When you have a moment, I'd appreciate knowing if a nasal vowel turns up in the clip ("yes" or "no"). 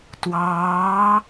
no